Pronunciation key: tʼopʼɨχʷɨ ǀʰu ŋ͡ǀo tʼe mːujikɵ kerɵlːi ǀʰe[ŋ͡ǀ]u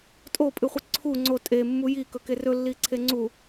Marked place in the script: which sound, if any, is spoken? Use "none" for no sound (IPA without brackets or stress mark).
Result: ŋ͡ǀ